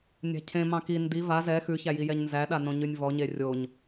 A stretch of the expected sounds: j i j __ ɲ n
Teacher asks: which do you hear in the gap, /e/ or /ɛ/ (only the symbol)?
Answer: ɛ